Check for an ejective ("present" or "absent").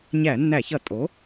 present